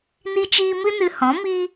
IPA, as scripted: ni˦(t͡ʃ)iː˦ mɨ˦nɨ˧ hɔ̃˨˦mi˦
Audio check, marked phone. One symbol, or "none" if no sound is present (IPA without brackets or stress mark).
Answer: t͡ʃ